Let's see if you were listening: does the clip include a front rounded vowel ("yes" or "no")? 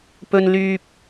yes